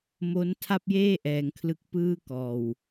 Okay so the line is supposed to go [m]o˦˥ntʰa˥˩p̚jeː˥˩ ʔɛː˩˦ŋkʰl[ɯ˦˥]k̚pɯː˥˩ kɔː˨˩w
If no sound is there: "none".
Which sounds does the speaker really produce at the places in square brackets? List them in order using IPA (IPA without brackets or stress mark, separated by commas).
m, ɯ˦˥